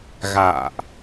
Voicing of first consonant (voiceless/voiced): voiced